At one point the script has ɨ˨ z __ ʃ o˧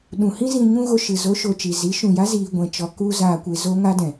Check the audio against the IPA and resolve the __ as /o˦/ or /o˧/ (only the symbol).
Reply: o˦